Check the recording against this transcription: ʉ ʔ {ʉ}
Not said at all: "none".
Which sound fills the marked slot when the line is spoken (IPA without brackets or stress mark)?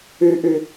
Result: ʉ